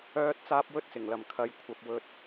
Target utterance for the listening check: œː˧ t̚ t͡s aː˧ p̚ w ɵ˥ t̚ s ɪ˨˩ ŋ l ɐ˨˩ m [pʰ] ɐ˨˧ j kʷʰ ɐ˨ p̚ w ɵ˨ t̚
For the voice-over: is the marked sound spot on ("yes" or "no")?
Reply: no